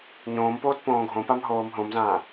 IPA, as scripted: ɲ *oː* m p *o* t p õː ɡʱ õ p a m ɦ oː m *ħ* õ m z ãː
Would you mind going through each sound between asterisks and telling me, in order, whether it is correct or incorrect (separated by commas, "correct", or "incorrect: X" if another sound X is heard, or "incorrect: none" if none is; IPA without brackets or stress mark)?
incorrect: õː, incorrect: oː, incorrect: ɦ